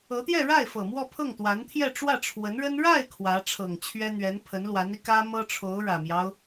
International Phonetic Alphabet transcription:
ɤ˧˥ t̪ j ɛ˥˧ ɻ a˥˩ ɪ̯ f ɤ˨˩ m w ɔ˥˧ pʰ ɤ˥˩ ŋ t̪ w a˧˥ n t̪ʰ j ɛ˥˧ ʈ͡ʂ w ä˥˩ ʈ͡ʂʰ w ə˧˥ n ɻ ə˥ n ɻ a˥˩ ɪ̯ kʰ w ä˧˥ ʈ͡ʂʰ ɤ˨˩ ŋ t͡ɕʰ ɥ ɛ˥ n̪ ɥ ɛ˧˥ n pʰ ə˧˥ n l w a˧˥ n i˧ k ä˥ m ɤ˥ ʈ͡ʂʰ o˧˥ ʊ̯ ɻ ä˨˩ m j ɑ˦ ʊ̯

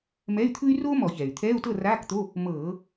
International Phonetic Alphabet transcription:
m ɛ˧˥˧ y̯ t̪ʰ ɯ˥ y̯ r oː˥ m ɔ˧˩˧ ç ɛː˩ y̯ t̪ʰ ɛː˧˥˧ u̯ t ɤ˥˨ r aː˧˥˧ k t̪ o˧˥˧ | m ɤː˧˩˧

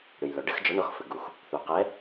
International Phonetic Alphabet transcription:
ɽ ɨ˩ j l ɔ˩ ɖ ɨ˨˦ x d͡ʒ ɔ˨˦ ɳ ɔ˨˦ x f ɘ˩ ɡ u˩ x | θ u˩ q ɛ˨˦

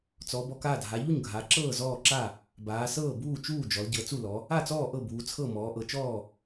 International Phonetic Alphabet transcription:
t͡s ɔ˩˧ b ɔ˩˧ k aː˥˩ dʱ a˩˧ ʎ u˥˩ ɲ ɡʱ a˩˧ ǁ ɤː˥˩ z ɔː˥˩ ǁ a˥˩ | b aː˩˧ s ɤː˥˩ b uː˥˩ t͡ʃ uː˥˩ d͡ʒ ɔ˩˧ l ɟ ɤ˩˧ t͡s u˥˩ l ɔ˩˧ | a˥˩ t͡s ɔː˥˩ ʔ ɤ˥˩ b uː˩˧ t͡sʰ ɤ˥˩ m ɔː˩˧ ʔ ɤ˩˧ t͡ʃ ɔː˥˩

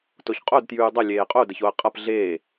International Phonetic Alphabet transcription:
t o ç qʼ o d t j ʉː dˤ ʌ lʲ eː qʼ o d ə ç o ə̯ qʼ ʌ p ɮ eː

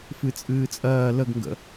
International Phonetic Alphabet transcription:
f ɨ t͡sʼ ɨː t͡sʼ ɜː l ə ɡ ŋ ɡ ə̰

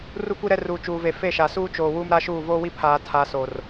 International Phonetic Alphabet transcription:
r u˦ kʷ i˦ ɾ ɛ˦ r uː˨ t͡ʃ uː˨ v e˨ f e˦˨ ʃ a˨ s uː˦ t͡ʃ oː˨ w uː˦ m ɾ a˦ ʃ uː˦˨ v oː˦ w i˦ pʰ aː˨ tʰ a˨ s o˨ r

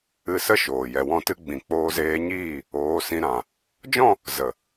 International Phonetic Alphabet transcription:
ɨ˧ s ə˦ ʃ oː˨ j ɛ˨ w ɔ̃˦˨ t ɨ˦ ɡ͡b ĩ˨ k͡p oː˧ z eː˧ ɲ iː˦˨ | oː˨˦ s ĩ˧ ɾ ã˨ | d͡ʒ ɔ̃˦˨ | z ə˨

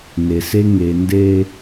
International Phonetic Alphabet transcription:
n e˨ s e˦ ŋ e˨ n d e˦

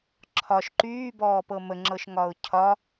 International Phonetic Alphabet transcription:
ǁʰ ɒ ʃ ǃ yː b ɔː p ɤ m ə ŋ͡ǁ ɤ ʃ ŋ ɒ ʊ̯ cʰ ɒ

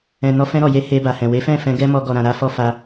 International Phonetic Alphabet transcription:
ɛ̃˨ n ɔ˧ f ɛ̃˧ ɾ ɔ˨ j e˨˦ h e˧ b a˨ h ɛ̃˨ w e˨˦ f ɛ̃˦˨ f ɛ̃˧ ɡ ɛ˦ m ɔ˧ ɡ ɔ˨ ɾ ã˨ ɾ a˧ f ɔ˧ f a˧

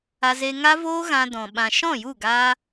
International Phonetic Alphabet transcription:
a˧ z e˧ ŋ a˦ v oː˦ ɣ ã˧ d ɔ̃˨ ɓ ã˨ ʃ ɔ̃˦˨ j u˦˨ ɡ aː˦

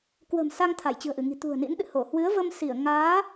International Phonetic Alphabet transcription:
k w ə̤˨˩ m s a˧ ŋ t̪ʰ a˧˩ j t͡ɕ ɨ̤˨˩ ə̯ ʔ ɨ˧˩ ŋ i̤˨˩ t̪ ṳ˨˩ ə̯ n ḭ˧˥ n ɗ ɨ̰˧˨ h o˧˩ h w ɨ˨˦ ə̯ v ə˧ m s i˧˩ ə̯ ŋ aː˨˦

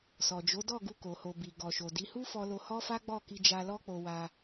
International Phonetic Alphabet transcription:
s ɔ˨ d͡ʒ o˨˦ d ɔ˦˨ ɡ u˧ k o˨ h o˨ b i˨ ɡ ɔ˨ ʃ o˨ d i˨˦ h u˦ f ɔ˧ l o˧ h ɔ˦ f a˦ ɡ͡b ɔ˦˨ k i˧ d͡ʒ a˧ l ɔ˦ k͡p o˧ w a˧

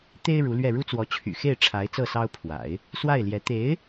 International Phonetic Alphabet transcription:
t̪ e˥ ɪ̯ ɻ u˧˥ l ɥ ɛ˥˩ ɻ u˥ t͡s w ɔ˧˥ t͡ɕʰ y̰˨˩ x e˥˩ ɪ̯ ʈ͡ʂʰ a˧˥ ɪ̯ t͡s ɤ˥˩ s ɑ˥ ʊ̯ pʰ w a̰˨˩˦ ɪ̯ | s w a˥˩ ɪ̯ l j ɛ˧˥ t̪ e˧˥ ɪ̯

